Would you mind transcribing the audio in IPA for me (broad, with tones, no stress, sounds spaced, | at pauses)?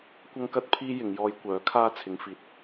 kʷ ɐ˥ ŋ k ɐ˥ t̚ pʰ iː˥ j ɪ˨˧ ŋ j ɔː˧ j kʷ œː˨˥ kʰ aː˥ t͡sʰ ɪ˨˧ ŋ f iː˨ t̚